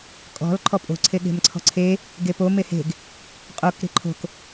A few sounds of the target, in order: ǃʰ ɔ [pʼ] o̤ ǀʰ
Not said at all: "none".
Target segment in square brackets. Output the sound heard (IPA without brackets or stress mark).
pʼ